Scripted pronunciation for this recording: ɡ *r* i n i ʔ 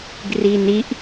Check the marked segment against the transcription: correct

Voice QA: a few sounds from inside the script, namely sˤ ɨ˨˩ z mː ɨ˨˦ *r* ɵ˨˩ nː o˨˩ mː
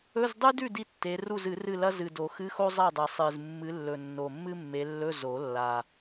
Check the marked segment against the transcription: incorrect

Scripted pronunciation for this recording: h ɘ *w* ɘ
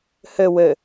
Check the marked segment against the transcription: correct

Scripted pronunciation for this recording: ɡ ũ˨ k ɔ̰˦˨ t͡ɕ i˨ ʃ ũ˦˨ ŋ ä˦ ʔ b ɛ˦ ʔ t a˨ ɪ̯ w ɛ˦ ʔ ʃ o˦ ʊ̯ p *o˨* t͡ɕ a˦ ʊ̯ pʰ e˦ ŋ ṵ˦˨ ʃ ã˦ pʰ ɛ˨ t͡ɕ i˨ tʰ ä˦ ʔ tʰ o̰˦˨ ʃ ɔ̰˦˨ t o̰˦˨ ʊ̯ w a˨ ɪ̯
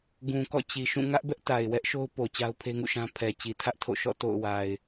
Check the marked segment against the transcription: correct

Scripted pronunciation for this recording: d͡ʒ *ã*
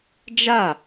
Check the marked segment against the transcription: incorrect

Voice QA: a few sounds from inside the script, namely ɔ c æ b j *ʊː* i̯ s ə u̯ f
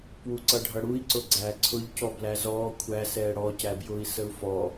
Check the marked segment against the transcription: correct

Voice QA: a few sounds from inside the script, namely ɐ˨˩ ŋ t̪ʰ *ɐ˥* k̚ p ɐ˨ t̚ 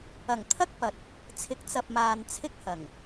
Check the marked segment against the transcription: correct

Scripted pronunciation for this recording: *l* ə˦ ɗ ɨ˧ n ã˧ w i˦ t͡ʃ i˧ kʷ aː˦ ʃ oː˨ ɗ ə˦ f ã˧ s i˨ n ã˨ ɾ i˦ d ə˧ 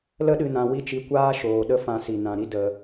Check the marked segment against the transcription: correct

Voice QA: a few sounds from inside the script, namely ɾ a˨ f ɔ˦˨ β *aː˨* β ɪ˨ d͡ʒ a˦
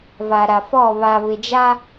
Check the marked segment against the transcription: incorrect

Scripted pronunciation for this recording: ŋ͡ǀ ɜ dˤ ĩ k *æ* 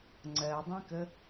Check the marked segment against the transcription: incorrect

